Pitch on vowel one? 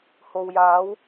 low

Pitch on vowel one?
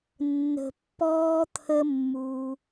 low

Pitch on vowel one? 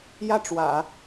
falling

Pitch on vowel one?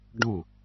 falling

